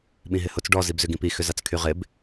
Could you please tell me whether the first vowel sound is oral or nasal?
nasal